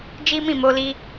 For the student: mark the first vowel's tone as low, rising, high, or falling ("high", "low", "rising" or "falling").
high